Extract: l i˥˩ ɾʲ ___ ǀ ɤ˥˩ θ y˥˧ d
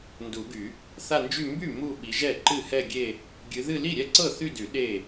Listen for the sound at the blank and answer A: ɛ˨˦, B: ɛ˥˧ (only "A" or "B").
B